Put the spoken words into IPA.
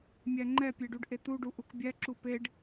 mʲ æ ŋ͡ǃ ɛ pʲ e ɖ u ɖ ʔ e t̪ u ɖ u ʔ u k bʲ æ ǁ u p e ɖ

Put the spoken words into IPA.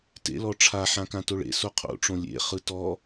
t ḛ l ɔ ʈ͡ʂʰ a ħ ã k ã t o ɭ ḛ s o qʰ o̰ ʈ͡ʂ õ lʲ ḛ χ ɯ t ɔ

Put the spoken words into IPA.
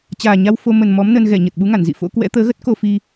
t͡ɕ aː˨˩ ɲ a˧ w f o˧ m ə˨˩ n m ɔ˨˦ m n ə˧ n ɣ ɛ˧˩ ɲ ə˨˩ t̚ ɓ u˨˦ ŋ a˧˩ n z ḭ˧˨ f o̰˧˥ k w ɛ̰˧˥ t̪ əː˨˦ ɣ ə˦˥ t̚ k o˧ f i˧

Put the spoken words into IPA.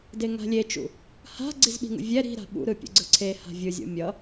d e ŋ a̤ lʲ e t͡ʃ ṵ | h a̤ ɡ͡ǀ i z ɓ i̤ ŋ ṵ vʲ ɛ ɾ i̤ ɾ a̤ ɓ ṵ ɾ ɯ pʲ ṵ ɡ͡ǀ ɯ ǀʰ e h a̤ vʲ ɯ zʲ o̰ mʲ ʌ

